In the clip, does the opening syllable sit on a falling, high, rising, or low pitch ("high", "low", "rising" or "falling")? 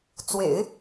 low